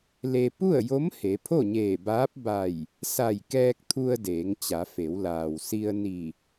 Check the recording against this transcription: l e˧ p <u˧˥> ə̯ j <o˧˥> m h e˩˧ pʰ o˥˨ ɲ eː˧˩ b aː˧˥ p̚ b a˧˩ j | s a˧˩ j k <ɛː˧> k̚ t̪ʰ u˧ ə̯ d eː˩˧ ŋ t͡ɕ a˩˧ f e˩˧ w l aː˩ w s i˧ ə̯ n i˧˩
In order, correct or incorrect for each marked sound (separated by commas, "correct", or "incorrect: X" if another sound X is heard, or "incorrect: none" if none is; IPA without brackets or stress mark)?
incorrect: u˥˨, correct, correct